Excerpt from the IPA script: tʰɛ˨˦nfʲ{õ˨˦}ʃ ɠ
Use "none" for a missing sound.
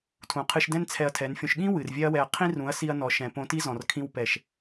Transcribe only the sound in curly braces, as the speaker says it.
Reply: õ˧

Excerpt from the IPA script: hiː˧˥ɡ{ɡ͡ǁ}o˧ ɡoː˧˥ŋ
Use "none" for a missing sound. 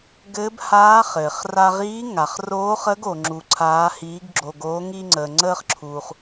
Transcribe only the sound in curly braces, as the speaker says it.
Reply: ɡ͡ǁ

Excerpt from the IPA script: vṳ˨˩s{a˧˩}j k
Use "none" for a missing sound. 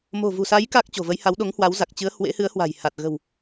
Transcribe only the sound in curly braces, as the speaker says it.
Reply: a˨˦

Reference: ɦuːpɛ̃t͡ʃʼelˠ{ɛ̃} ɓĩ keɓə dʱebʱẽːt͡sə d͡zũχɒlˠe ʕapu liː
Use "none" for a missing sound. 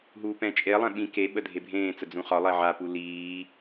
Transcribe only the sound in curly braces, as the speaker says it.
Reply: ɛ̃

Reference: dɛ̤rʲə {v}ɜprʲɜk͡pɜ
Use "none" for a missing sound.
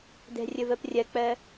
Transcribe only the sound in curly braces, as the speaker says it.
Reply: v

